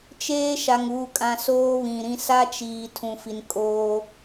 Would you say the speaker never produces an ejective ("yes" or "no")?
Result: no